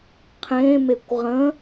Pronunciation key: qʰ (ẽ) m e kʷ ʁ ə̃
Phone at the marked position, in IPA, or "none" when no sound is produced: ẽ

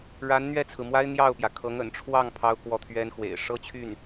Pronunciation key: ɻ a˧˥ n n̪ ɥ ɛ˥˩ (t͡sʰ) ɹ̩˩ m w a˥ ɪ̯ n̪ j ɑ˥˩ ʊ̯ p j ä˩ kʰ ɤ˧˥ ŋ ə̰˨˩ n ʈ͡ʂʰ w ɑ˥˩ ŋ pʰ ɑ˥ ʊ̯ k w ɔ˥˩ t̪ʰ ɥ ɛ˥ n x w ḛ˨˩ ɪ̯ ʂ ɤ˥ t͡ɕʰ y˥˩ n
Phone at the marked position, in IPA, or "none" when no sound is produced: t͡sʰ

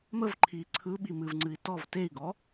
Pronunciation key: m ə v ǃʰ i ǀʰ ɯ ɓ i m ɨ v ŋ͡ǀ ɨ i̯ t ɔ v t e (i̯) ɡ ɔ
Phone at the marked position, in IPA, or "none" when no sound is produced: i̯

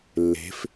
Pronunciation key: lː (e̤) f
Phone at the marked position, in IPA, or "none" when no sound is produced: e̤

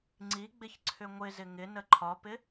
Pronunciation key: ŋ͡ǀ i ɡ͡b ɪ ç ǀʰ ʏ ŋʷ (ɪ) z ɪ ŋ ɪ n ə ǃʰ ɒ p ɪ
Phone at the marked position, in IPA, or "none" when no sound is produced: ɪ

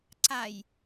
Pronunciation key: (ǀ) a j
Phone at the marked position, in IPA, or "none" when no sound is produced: ǀ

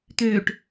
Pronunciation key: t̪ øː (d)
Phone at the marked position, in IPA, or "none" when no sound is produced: ʈ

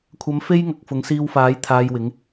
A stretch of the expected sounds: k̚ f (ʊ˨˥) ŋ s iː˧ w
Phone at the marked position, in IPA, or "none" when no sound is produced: ʊ˨˧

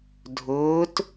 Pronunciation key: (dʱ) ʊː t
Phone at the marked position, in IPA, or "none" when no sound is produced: dʱ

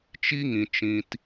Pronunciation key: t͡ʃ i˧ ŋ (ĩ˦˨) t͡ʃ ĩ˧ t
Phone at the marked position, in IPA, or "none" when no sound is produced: ĩ˨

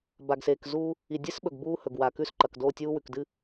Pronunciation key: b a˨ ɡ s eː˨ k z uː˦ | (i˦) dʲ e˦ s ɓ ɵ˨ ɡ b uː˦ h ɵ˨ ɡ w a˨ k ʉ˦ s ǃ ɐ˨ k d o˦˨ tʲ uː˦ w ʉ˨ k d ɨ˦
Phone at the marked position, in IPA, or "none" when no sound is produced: i˨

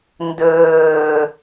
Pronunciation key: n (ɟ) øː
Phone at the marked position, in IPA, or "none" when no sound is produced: d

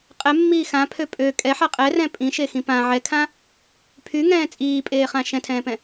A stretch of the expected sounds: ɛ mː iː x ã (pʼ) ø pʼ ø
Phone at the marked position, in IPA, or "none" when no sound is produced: pʰ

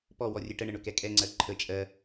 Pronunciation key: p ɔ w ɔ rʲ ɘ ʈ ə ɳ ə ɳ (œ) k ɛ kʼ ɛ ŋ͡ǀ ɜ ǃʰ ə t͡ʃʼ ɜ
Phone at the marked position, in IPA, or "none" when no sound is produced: ɵ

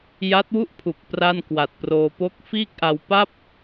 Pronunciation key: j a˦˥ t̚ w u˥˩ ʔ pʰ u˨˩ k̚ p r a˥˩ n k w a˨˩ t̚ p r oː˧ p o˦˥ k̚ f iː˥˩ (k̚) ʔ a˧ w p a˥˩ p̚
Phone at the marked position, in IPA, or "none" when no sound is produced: k̚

